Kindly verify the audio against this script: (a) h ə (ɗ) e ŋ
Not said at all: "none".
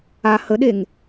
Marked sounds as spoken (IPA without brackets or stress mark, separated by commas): a, ɗ